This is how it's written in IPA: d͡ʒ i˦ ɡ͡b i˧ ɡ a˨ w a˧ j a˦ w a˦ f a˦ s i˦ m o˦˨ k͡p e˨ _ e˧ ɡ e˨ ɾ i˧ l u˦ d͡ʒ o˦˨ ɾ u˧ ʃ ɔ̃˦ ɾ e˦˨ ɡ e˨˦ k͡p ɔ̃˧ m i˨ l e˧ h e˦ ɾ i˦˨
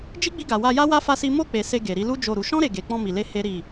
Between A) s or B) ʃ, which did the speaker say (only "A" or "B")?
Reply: A